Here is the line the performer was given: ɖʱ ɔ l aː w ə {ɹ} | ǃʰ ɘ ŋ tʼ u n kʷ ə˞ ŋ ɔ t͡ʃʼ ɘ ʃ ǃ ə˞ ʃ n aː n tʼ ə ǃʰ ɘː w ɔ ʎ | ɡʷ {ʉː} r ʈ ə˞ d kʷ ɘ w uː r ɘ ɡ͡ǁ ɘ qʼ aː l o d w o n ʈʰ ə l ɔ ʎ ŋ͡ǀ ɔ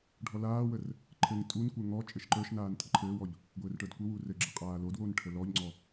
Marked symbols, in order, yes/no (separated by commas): no, no